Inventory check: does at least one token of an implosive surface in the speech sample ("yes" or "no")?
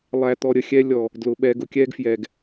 yes